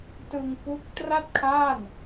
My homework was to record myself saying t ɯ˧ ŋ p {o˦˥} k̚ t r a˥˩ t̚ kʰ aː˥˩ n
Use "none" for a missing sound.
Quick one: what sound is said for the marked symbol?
u˦˥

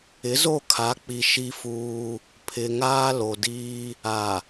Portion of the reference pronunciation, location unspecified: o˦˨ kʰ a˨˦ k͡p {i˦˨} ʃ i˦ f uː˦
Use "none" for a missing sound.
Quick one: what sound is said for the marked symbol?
i˨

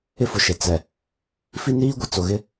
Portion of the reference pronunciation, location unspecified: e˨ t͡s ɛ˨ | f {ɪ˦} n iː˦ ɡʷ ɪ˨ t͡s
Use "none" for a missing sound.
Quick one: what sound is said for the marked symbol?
i˦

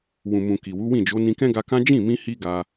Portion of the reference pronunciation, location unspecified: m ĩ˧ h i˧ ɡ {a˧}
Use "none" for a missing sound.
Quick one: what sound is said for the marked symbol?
a˧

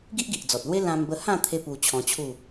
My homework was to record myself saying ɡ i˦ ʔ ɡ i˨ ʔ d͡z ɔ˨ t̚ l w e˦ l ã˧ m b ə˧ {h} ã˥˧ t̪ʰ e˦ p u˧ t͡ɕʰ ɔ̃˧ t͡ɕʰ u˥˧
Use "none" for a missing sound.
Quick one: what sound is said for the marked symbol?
h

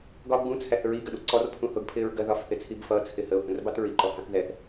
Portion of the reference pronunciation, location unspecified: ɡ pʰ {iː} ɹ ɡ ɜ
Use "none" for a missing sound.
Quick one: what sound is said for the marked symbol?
ɪː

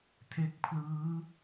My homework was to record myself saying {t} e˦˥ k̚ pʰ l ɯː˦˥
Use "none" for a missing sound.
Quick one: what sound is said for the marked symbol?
tʰ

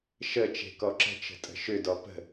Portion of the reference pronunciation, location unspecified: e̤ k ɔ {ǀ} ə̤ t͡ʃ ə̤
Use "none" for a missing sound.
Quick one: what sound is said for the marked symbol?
ǁ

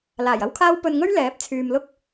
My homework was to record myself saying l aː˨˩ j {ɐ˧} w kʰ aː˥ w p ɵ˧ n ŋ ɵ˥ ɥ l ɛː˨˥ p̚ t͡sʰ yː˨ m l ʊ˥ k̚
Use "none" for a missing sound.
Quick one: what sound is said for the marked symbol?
ɐ˥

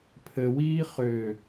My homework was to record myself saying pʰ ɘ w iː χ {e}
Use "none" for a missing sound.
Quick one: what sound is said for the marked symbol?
ø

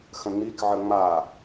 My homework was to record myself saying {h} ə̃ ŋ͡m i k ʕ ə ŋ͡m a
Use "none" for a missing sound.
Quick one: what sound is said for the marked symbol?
x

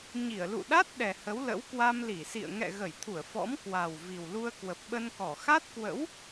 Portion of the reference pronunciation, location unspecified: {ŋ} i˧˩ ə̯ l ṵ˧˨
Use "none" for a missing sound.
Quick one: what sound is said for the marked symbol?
ɲ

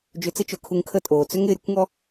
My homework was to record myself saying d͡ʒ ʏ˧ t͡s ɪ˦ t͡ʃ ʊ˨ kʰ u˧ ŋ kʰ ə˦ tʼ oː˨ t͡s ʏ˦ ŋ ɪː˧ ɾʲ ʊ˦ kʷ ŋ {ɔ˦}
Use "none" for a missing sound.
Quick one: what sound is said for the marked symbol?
ɔ˦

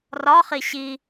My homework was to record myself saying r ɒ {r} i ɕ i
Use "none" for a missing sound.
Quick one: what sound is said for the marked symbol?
χ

